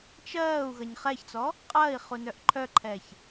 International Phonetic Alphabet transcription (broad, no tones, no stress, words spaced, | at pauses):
t͡ʃɜːu̯ ɣɐɲχɛçt͡sɔ | qʼɐːi̯ χunœʔǃʰœǃʰɛç